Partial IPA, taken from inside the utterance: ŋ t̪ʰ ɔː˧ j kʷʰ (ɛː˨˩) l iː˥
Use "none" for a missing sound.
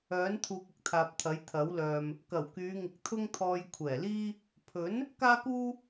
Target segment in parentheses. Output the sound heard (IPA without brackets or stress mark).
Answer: ɛː˨˩